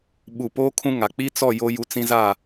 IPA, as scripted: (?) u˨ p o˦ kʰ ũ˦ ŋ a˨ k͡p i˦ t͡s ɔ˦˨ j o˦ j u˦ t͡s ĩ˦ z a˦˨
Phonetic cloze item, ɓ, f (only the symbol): ɓ